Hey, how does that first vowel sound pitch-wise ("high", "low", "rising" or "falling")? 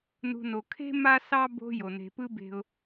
low